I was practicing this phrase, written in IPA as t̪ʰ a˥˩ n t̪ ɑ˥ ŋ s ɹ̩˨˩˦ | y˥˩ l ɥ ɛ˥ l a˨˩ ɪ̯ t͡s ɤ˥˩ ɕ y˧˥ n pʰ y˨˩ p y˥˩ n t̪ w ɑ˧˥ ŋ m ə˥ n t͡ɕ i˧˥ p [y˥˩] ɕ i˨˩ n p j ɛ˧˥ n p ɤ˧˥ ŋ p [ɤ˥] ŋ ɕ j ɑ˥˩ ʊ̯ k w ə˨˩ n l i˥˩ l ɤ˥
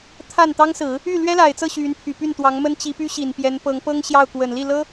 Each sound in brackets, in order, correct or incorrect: incorrect, correct

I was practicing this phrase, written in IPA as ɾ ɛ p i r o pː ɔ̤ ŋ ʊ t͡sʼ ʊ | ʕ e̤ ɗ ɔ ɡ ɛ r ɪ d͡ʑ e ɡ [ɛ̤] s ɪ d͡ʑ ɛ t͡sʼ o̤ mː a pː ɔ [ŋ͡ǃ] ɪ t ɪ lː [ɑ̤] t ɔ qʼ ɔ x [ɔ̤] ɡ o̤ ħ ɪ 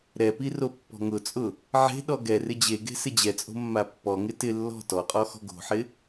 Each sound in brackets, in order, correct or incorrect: incorrect, incorrect, incorrect, correct

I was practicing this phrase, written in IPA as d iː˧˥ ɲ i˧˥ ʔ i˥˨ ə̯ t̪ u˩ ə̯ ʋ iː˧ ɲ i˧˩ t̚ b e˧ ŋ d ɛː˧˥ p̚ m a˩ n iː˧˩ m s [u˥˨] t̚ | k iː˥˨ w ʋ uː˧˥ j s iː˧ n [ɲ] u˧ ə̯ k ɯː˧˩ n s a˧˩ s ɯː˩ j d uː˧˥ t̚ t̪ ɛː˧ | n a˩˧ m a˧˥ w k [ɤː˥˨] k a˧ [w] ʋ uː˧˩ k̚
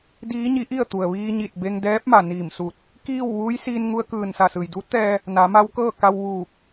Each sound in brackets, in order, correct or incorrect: incorrect, incorrect, correct, correct

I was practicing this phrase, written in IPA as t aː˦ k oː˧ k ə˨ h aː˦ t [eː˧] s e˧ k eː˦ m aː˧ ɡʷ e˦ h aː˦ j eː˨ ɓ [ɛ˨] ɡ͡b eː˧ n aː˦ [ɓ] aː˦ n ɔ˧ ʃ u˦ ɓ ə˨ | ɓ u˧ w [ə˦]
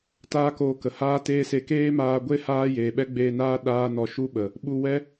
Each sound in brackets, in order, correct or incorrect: incorrect, incorrect, incorrect, incorrect

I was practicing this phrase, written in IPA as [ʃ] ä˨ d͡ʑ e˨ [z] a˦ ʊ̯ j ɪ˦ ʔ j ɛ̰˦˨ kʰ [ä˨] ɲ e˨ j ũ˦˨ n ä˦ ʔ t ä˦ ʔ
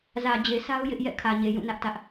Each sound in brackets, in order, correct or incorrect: incorrect, incorrect, correct

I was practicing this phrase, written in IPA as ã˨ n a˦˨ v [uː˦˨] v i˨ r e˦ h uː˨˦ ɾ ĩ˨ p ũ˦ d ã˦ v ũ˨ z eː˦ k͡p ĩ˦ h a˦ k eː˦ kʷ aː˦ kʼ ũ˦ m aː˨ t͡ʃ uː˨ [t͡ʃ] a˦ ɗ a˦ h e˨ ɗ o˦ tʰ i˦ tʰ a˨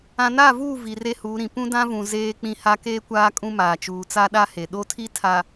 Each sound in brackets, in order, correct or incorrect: correct, incorrect

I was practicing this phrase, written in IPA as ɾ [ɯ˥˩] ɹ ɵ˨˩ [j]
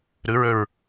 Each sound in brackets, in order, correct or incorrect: incorrect, incorrect

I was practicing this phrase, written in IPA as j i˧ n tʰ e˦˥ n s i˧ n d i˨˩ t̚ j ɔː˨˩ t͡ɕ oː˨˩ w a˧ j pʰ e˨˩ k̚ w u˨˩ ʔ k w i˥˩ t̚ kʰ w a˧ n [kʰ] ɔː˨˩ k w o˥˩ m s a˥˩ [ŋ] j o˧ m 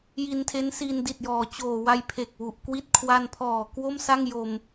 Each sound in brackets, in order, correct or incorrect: incorrect, correct

